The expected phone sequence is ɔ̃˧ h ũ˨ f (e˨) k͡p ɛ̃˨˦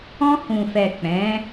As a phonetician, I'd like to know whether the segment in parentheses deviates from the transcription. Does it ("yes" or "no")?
yes